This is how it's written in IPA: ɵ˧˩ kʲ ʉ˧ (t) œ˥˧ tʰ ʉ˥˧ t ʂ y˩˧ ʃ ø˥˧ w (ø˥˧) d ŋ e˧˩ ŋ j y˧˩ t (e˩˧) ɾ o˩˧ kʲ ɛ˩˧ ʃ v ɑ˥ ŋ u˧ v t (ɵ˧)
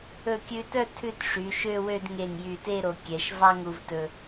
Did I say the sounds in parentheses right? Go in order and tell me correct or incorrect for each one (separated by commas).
correct, correct, incorrect, correct